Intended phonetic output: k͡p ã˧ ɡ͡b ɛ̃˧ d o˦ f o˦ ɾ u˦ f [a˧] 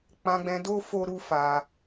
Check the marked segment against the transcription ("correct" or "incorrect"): correct